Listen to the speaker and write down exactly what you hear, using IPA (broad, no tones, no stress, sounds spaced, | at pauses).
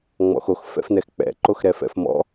ŋ͡m ɔ̰ x o x f ɛ̰ f n ɛ x k͡p ɛ̰ ǃ o x ɾ ɛ f ɛ̰ f m ɔ̰